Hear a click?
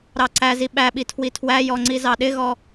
yes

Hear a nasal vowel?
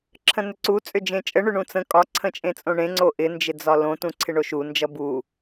yes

